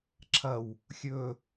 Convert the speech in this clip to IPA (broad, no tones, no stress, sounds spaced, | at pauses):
ǁʰ ɐ w | xʲ ɵ